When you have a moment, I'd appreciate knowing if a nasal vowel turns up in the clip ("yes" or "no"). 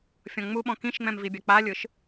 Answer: yes